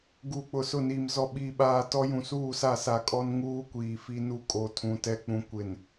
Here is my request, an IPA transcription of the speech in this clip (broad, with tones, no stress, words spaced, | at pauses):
ɡuː˨k͡pʊ˨sʊ˦˨niː˨m zɔ˨ɓiː˨ɓaː˨ tɔ˦ jũ˨suː˦˨sa˦˨ sa˨kʼɔ˦nŋuː˦ kʷiː˨fi˦nu˦ kʼo˨tʰũ˨ tɛ˦ k͡pũ˨ kʷɪ˨n